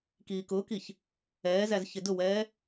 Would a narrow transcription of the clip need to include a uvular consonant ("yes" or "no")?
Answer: no